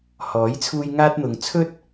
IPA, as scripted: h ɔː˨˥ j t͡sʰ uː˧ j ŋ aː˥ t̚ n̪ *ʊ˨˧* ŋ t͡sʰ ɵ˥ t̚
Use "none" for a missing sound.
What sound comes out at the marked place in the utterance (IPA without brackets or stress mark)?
ʊ˨˧